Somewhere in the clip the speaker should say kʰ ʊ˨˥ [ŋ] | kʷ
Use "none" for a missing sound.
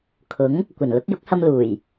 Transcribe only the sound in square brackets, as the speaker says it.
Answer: ŋ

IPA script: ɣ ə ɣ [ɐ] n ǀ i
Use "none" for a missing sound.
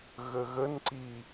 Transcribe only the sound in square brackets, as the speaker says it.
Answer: ə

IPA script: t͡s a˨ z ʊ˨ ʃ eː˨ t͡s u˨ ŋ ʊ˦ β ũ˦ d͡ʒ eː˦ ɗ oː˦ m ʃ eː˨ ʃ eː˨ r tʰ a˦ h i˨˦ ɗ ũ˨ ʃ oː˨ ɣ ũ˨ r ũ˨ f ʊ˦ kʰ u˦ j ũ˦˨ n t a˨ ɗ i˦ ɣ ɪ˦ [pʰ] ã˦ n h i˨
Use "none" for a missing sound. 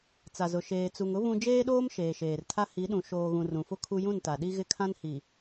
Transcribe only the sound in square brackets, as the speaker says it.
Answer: kʰ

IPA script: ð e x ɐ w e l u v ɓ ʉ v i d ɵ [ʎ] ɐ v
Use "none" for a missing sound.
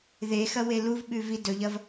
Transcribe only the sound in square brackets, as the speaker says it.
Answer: ʎ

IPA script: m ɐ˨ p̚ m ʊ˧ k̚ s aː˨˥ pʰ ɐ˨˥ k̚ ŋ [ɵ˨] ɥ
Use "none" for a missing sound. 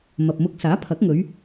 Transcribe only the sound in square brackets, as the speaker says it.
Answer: ɵ˨˧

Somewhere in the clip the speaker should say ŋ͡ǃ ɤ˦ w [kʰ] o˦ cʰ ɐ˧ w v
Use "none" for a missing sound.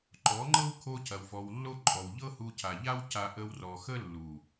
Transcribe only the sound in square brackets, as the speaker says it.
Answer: kʰ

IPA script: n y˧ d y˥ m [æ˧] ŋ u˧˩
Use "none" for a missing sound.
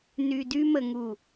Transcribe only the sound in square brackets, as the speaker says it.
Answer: ə˧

